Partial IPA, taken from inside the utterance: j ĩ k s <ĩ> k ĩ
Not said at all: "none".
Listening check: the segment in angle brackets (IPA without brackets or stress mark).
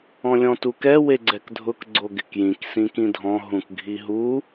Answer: ĩ